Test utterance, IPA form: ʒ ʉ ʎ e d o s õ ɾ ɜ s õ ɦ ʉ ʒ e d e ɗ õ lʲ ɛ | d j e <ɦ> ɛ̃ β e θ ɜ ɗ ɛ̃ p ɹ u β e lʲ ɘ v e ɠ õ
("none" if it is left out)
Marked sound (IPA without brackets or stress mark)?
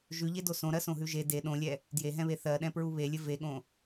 ɦ